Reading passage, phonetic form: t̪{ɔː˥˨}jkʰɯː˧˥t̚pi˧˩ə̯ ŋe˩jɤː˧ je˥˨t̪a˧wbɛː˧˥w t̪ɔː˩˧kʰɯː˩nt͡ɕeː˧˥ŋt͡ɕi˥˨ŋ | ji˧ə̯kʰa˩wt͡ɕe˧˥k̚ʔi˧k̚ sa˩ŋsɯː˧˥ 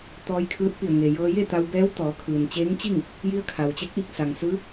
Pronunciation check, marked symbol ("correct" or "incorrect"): incorrect